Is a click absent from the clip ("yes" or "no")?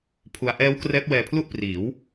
yes